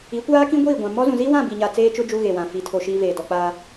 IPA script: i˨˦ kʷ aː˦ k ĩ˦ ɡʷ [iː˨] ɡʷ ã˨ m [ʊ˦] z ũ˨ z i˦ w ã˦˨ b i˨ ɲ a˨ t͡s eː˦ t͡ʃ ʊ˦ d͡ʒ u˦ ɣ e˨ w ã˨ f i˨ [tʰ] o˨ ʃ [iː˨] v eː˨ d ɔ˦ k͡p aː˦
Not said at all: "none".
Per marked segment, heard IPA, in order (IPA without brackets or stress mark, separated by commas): iː˦˨, ɔ˦, tʰ, iː˦